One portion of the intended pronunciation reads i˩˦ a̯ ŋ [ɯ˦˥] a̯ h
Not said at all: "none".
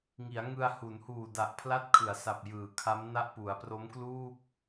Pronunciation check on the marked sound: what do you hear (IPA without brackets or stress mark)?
ɯ˧